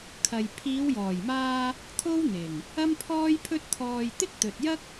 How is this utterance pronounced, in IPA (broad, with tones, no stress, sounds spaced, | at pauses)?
kʰ ɐ˨ j pʰ iː˨˧ w j ɔː˨˩ j m aː˧ | t̪ʰ o˥ w n̪ ɪ˨˩ ŋ | ɐ˥ m pʰ ɔː˥ j pʰ ɵ˥ t̚ t̪ʰ ɔː˧ j t̪ ɪ˥ k̚ t̪ ɵ˨ t̚ j ɐ˥ k̚